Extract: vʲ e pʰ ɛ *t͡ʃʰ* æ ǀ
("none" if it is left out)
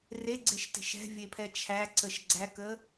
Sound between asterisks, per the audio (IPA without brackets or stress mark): t͡ʃʰ